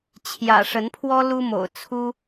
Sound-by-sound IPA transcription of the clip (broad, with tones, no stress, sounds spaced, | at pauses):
t͡ɕʰ j ä̰˨˩ ʂ ə˨˦ n pʰ w ɔ˦ l u˦ m o̰˨˩ ʊ̯ t͡sʰ u˦